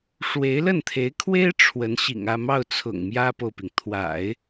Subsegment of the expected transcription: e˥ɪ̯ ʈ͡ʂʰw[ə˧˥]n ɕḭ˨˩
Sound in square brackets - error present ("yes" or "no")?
no